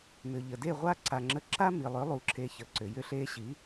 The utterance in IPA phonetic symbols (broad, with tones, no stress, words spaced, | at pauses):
mʏ˨ʎə˨ de˦˨ʁʷa˦ǀa˨ŋ͡ǁə˧ ǁa˦mi˨lˠʏ˨˦ lˠu˧ǁʰe˧çə˨˦ǀʏ˨ jʏ˧ɬe˧ɕi˨˦